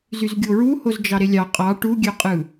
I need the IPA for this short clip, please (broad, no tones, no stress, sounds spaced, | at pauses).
z y z ɡʲ o ɹ u h o z d͡ʒ ɑ ɾ e lʲ ɑ qʼ ɑ ʈ u ɡʲ ø qʼ ɯ